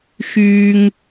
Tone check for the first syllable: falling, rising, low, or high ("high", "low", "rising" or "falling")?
high